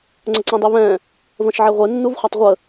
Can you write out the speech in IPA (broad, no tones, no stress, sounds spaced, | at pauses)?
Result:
ŋ͡ǀ ə ǀ ɛ̃ dˤ e β ɛ̃ | v ə̃ ʃ ʕ e ʁʷ e nː u v χʷ ɐ tˤ ʁʷ ə